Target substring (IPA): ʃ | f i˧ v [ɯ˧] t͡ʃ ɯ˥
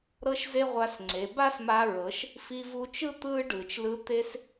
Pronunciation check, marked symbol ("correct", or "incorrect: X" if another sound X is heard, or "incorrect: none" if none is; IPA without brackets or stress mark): incorrect: u˧